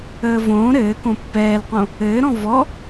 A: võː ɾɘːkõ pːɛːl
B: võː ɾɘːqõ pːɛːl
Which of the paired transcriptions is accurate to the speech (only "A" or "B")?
A